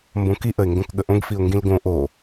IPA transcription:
mbõkiʔəɪ̯ ŋɡõkɠəʔõɡfiʊ̯ ŋɡĩlɡõ ʔo

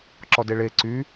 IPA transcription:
ǁɔdeɭe ǀy

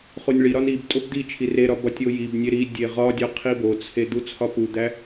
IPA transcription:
χonʲɭiɾɒn ib tʼobd̪it͡ʃʰi reɾɒ bɒtʲojibnʲe ɾi dʲeʁɒdʲɒ qʰibot͡sʰe d̪ut͡sʰɒpud̪æ

